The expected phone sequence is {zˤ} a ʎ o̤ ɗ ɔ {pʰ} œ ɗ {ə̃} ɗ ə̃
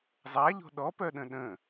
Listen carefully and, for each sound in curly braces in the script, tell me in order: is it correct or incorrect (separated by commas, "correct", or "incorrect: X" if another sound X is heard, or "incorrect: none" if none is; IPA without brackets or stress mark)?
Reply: correct, incorrect: p, correct